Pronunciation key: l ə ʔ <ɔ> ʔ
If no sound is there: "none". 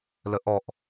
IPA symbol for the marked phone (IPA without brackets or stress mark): ɔ